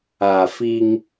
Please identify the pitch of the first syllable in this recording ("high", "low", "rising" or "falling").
low